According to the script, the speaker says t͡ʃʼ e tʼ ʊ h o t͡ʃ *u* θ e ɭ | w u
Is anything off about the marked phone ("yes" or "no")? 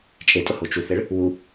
no